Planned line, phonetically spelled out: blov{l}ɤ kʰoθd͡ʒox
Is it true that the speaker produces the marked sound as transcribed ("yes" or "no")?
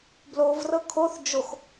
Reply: no